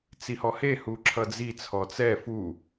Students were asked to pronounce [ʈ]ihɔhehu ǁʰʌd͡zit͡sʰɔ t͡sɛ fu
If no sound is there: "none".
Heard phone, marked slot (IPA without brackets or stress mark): t͡s